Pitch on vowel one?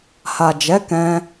low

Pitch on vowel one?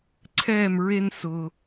falling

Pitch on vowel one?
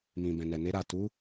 low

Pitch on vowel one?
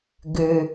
low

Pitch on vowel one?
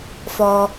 low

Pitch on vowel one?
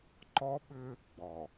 high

